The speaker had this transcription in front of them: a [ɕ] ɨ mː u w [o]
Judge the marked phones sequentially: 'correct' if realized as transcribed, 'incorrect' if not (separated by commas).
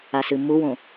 incorrect, incorrect